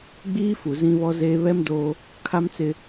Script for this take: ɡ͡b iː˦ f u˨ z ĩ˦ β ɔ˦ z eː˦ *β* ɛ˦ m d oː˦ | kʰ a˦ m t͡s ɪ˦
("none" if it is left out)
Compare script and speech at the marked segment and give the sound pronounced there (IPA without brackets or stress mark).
β